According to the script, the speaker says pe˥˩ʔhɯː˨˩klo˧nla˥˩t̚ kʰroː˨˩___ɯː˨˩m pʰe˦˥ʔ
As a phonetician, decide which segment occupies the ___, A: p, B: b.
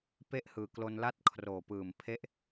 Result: A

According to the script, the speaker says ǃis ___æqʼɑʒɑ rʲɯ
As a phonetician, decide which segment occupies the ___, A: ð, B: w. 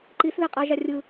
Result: A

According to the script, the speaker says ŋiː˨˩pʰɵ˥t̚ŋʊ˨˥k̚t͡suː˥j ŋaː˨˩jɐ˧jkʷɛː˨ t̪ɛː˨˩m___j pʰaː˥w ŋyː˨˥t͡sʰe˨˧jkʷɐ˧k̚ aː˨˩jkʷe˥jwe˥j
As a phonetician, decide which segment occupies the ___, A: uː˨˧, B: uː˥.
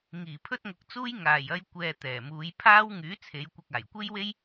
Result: A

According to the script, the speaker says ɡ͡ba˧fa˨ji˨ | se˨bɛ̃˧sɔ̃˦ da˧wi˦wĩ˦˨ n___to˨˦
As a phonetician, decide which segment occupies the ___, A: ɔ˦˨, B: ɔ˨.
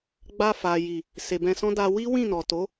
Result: B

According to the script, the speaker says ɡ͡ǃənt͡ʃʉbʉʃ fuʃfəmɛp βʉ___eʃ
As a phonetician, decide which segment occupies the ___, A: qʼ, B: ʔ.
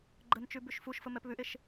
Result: B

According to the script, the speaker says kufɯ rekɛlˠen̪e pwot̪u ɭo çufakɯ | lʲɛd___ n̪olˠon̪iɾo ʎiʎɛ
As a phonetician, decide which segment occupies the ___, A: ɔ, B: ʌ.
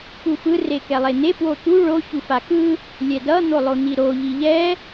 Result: B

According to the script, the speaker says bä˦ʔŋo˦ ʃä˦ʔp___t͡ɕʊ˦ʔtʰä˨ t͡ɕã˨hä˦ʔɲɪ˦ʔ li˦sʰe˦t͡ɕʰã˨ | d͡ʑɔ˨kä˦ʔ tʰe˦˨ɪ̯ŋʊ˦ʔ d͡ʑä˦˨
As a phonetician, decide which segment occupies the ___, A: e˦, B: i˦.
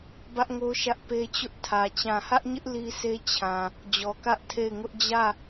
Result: A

